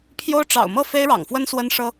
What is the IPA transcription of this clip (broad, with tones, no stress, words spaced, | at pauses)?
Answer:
pʰjo˥ʊ̯ ʈ͡ʂɑ̰˨˩ʊ̯mɤ˥˩ fe˥ɪ̯ɻɑ̰˨˩ŋfwə˥n swə˥nʂɤ˥